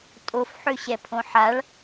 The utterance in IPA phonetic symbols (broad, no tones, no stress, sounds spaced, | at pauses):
tʼ o f ħ ø ɕ ɛ pʰ õ ħ a ɭ